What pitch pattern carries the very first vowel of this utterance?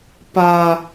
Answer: high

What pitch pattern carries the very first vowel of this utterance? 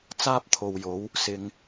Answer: high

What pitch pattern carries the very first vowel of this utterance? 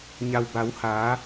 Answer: low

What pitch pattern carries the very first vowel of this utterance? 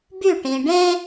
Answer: falling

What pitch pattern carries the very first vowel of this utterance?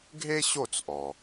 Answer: high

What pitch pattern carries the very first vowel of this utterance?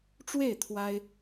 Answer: falling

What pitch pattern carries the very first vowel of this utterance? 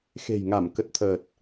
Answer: low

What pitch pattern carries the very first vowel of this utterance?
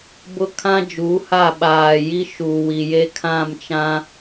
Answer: high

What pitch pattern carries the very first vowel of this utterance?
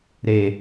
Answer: low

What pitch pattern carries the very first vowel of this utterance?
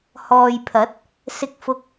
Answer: low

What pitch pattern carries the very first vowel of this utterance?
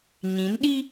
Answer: rising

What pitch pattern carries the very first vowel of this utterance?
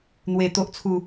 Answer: low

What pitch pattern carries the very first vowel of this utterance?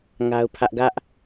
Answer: high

